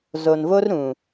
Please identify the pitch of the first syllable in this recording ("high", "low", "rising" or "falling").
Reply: low